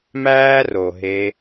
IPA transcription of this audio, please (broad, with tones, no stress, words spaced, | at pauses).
mæː˦ro˨ɦe˧